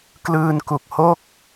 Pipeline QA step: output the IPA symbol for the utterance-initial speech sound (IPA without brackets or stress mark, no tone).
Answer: k